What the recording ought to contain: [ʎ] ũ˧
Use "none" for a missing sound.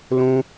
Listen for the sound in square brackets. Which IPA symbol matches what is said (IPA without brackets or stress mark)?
l